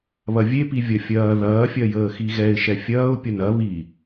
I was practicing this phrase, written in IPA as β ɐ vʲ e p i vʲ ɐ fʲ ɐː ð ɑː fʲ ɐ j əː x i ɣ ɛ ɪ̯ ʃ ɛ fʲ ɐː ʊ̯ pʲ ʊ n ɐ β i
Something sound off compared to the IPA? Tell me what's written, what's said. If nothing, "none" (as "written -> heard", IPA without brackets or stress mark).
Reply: ɑː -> ɐː